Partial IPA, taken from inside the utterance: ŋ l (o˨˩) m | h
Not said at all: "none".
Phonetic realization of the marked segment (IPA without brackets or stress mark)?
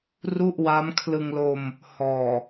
o˧